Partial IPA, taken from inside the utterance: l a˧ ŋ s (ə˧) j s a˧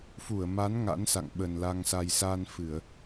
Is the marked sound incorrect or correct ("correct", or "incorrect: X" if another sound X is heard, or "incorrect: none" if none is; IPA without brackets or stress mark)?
incorrect: a˧